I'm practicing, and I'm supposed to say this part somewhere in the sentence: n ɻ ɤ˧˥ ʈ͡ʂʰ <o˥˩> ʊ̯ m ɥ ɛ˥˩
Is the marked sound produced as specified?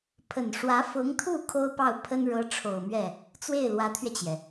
no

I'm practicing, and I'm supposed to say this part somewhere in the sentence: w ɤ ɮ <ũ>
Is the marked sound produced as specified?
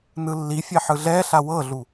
no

